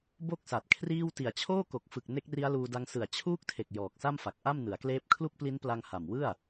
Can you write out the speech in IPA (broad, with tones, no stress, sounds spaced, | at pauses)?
b o˥˩ k̚ s a˨˩ t̚ kʰ r iː˥˩ w t i˨˩ a̯ t͡ɕʰ oː˥˩ k o˨˩ k̚ f ɯ˨˩ k̚ n e˦˥ k̚ r i˦˥ a̯ l uː˧ d a˦˥ ŋ s ɯ˨˩ a̯ t͡ɕʰ uː˦˥ k̚ tʰ e˨˩ k̚ j ɔː˨˩ k̚ s a˥˩ m f a˨˩ k̚ ʔ a˥˩ m n ɯ˩˦ a̯ k l eː˦˥ p̚ kʰ l u˥˩ k̚ p l i˦˥ n p l a˧ ŋ h a˨˩ m w ɯ˥˩ a̯